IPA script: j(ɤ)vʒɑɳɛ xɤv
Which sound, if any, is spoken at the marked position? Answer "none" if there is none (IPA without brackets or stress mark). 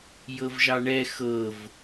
ɤ